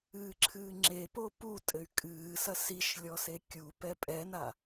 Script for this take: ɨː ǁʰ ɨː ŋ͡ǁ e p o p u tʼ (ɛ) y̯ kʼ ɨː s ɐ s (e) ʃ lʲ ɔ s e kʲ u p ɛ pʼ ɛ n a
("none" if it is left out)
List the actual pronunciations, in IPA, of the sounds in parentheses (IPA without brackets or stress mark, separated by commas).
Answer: ɘ, i